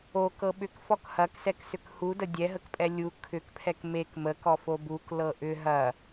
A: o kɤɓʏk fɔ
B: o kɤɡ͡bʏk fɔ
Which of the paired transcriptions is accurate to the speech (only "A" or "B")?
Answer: A